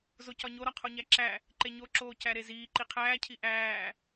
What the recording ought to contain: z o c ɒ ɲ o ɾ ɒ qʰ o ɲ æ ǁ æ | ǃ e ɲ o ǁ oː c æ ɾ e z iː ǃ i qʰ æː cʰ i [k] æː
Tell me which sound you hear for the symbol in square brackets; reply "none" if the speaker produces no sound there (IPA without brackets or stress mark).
ʔ